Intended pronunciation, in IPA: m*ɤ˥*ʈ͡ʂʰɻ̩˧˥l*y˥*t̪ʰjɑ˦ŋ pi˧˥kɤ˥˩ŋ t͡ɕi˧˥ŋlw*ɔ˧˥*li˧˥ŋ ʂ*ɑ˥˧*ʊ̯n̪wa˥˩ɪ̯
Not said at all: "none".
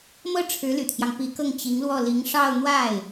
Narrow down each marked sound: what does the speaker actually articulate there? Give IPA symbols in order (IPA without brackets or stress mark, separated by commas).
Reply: ɤ˥, y˨˩, ɔ˥˩, ɑ˥˧